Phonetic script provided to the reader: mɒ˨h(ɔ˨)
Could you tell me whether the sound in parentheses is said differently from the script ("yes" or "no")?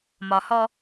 yes